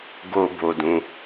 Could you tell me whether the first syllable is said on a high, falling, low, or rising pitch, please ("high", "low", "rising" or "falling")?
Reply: low